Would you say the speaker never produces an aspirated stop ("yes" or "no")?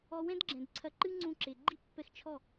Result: no